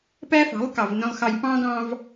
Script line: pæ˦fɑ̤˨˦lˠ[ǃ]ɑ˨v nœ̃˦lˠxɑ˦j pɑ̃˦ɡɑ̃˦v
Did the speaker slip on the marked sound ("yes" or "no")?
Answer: yes